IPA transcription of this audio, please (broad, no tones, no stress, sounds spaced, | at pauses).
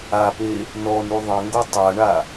a p e | n ɔ n u ðˤ ə̃ ŋ ɡ o tˤ a ɳ a